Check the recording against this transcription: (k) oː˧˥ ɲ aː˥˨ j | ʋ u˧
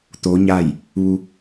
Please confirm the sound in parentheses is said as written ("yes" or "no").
no